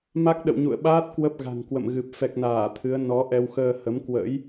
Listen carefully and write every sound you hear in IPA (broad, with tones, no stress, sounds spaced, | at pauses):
m a˦˥ k̚ ɗ ə̰˧˨ w ɲ ṵ˧˨ ə̯ ɓ aː˦˥ t̚ k w ə˦˥ p̚ ɣ a̤˨˩ ŋ k w ə̰˧˨ m ɣ ɨ˨˩ p̚ f ɛ˨˩ k̚ n aː˧˩ t̪ʰ ɨ˨˦ ə̯ n ɔ˨˦ ʔ ɛ˧ w x əː˧ h ə˨˦ m k w ə̰˧˥ j